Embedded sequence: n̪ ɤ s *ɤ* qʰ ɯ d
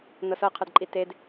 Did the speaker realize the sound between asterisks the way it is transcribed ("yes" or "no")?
yes